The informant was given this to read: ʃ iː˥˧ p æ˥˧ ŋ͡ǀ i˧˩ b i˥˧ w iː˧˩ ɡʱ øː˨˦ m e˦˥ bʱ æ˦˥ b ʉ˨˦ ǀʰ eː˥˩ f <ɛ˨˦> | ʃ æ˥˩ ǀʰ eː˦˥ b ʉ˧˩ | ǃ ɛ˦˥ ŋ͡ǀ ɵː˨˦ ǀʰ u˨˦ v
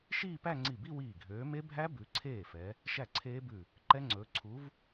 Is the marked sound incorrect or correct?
correct